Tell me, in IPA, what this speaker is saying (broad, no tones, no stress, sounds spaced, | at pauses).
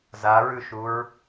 z a ɹ ʉ ʃ u ɹ